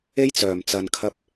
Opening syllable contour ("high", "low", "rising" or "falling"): high